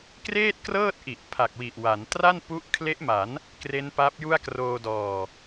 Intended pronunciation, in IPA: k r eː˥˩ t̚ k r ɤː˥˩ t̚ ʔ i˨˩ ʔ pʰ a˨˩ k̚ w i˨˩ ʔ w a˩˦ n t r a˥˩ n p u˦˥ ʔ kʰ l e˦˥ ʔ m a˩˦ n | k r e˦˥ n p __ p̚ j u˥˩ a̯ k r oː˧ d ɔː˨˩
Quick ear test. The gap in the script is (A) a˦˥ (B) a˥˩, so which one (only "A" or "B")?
A